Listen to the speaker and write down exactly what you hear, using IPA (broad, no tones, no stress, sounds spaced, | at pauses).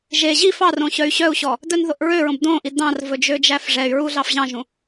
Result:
ʒ e ʑ i f ɑ r õ ɕ œ y̯ ɕ œ u̯ ɕ ɔ | d œ n ð o ʔ ɹ ø ɹ õ b d õ ʔ i d ɑ̃ r v ɵ d͡ʒ ø d͡ʒ æ f ʐ ɛ y̯ ɹ u ɮ ɑ f ʑ ɑ̃ ʒ ũ